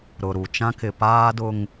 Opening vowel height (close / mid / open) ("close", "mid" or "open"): close